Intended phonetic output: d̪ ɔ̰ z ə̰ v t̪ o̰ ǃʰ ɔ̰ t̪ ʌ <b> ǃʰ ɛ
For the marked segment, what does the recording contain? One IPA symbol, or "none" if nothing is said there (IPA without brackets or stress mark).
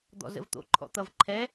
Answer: v